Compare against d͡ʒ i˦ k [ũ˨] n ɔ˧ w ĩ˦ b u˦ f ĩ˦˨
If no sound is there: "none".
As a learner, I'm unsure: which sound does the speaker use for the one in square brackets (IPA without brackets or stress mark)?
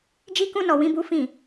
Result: ũ˦